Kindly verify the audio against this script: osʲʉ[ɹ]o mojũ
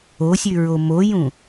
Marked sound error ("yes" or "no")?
no